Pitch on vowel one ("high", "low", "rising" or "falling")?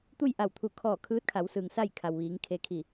falling